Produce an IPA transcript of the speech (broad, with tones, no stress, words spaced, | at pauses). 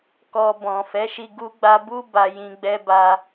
kɔ˧ bɔ̃˨fɛ˨˦ʃi˧ ɡu˦ɡ͡ba˦ bu˦ ba˧jĩ˧ ɡ͡bɛ˦ba˦